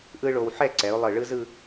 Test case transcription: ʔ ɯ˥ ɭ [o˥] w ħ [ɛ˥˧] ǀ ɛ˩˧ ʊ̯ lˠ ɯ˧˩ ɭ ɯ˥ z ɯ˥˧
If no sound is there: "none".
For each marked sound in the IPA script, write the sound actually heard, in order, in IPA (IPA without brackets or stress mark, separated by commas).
o˧, ɛ˥˧